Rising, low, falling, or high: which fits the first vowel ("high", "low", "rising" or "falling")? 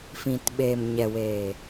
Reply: low